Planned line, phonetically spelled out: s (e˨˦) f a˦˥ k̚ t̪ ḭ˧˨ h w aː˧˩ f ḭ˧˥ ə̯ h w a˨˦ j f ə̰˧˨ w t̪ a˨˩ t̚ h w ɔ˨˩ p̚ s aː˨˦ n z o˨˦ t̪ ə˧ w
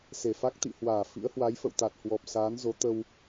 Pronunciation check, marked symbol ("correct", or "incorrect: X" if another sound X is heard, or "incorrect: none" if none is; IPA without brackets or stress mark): incorrect: e˧˩